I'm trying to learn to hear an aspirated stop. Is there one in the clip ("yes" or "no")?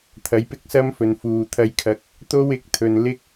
yes